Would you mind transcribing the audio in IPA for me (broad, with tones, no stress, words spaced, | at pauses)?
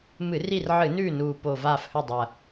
mɨ˧˩˧r i˦˨rʕɨ˧˩˧nʉː˦˨ nuː˨˩po˨˩ vaː˦˨fhɵ˦˨dˤɐ˨˩